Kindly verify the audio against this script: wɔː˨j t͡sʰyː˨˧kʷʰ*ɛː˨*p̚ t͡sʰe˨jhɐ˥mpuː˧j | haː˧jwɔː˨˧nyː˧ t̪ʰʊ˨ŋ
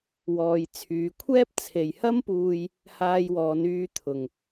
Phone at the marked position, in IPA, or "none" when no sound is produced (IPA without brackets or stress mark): ɛː˥